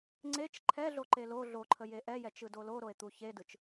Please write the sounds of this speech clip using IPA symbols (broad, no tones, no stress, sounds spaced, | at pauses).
ŋ͡ǀ e t͡ʃ ǃʰ ɛ ɮ o ǃ e l o ɮ o ǃʰ ə j e ʔ ɛ j ɛ t͡ʃ ɯ d o l o ɾ o e̯ t̪ u ç e d ɯ t͡ʃ